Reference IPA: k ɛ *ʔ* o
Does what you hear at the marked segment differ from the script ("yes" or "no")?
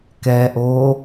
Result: no